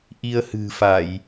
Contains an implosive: no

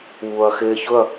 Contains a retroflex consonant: no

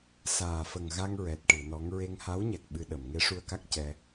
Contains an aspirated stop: no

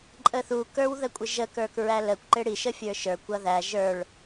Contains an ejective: yes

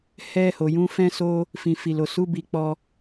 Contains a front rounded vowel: no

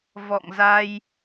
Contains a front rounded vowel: no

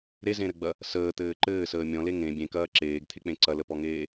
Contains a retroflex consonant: no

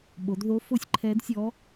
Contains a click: yes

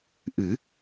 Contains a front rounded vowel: no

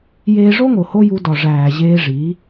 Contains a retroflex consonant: yes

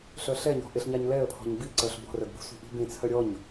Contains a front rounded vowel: yes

